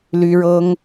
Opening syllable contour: high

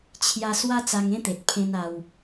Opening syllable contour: high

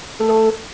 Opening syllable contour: low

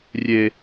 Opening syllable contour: high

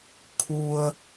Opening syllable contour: low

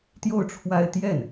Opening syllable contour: falling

